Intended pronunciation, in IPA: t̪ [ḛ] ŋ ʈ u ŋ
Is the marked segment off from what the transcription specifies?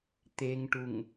yes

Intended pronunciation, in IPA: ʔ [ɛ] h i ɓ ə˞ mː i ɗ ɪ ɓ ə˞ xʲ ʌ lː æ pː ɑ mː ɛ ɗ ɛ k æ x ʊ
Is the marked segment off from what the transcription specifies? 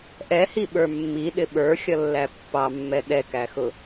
no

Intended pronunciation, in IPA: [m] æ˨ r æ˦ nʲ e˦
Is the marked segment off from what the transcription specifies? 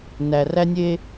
yes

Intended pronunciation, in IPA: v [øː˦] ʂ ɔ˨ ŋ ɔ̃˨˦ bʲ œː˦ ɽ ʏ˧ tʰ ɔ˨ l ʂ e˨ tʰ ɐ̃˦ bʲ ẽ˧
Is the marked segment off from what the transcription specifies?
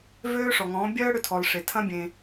no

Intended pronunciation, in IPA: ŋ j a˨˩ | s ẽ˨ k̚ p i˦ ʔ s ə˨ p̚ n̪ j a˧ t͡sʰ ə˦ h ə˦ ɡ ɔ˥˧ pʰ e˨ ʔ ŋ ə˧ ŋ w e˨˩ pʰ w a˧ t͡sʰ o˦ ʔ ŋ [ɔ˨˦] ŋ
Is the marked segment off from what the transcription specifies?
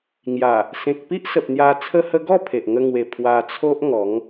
no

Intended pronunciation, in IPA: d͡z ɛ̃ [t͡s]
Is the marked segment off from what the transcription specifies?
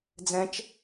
yes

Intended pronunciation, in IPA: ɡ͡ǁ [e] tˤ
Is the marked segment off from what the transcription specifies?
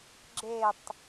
no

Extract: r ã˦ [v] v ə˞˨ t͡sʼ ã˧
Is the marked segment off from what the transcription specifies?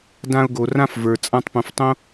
yes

